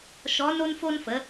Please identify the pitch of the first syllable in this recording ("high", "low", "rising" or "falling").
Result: rising